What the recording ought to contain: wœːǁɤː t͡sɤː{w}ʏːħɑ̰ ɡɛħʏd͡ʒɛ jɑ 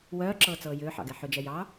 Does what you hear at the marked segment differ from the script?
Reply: yes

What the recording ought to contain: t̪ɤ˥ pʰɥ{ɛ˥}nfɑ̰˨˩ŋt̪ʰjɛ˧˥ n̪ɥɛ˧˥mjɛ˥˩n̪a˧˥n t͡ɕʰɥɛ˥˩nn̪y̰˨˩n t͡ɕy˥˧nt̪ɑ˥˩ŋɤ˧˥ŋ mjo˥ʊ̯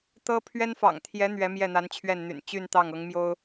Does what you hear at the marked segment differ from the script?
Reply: no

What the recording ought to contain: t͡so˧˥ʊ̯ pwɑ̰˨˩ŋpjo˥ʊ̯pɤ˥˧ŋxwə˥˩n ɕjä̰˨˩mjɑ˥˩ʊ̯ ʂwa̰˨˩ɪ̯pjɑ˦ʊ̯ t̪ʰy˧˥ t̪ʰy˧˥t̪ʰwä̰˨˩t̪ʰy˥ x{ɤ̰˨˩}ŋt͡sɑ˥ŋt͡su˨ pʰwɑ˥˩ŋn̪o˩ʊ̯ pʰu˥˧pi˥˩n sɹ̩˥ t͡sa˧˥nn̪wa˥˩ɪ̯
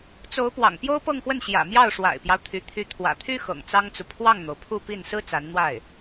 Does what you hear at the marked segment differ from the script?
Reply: no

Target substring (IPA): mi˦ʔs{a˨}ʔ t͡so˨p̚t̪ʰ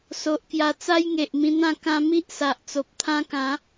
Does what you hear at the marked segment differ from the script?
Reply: no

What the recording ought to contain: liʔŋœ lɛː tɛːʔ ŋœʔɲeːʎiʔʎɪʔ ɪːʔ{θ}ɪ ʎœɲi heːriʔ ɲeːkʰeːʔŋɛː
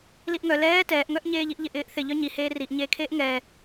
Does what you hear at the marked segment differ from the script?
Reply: no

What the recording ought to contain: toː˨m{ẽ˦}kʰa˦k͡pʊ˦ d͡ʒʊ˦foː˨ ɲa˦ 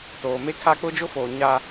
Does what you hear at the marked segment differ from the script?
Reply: yes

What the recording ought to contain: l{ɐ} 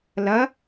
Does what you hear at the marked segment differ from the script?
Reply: no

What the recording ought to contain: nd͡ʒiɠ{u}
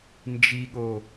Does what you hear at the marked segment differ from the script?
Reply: yes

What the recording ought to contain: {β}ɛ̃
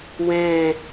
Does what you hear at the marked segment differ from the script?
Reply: yes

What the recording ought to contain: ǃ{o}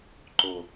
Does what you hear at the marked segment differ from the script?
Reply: no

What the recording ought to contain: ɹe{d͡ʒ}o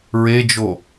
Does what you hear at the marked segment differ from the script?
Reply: no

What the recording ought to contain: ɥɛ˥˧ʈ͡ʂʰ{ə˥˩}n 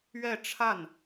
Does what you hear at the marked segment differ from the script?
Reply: yes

